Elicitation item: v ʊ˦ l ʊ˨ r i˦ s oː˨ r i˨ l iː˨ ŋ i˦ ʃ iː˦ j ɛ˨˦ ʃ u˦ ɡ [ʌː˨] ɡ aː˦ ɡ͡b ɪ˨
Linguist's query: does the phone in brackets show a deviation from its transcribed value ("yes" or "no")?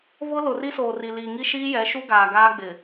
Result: yes